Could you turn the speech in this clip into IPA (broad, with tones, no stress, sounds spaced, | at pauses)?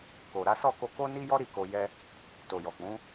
k o˨ ɾ a˨˦ s ɔ˦˨ k o˧ k o˦ n i˦ j ɔ˦ ɾ i˦˨ k o˧ j ɛ˦ | t o˨ j ɔ˨ k͡p ũ˨˦